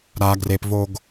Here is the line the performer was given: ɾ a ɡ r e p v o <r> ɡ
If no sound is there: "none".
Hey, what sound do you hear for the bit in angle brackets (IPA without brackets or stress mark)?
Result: none